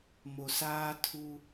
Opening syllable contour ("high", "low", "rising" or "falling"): low